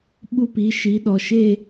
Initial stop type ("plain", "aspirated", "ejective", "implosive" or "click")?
implosive